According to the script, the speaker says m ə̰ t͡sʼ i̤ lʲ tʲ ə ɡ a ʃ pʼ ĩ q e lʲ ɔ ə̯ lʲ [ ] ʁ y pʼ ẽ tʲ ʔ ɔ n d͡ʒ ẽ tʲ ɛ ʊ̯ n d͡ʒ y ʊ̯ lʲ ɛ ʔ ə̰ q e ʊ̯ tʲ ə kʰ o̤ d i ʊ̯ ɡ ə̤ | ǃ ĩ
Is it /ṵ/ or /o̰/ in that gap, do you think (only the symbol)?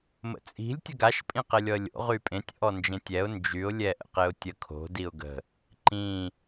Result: o̰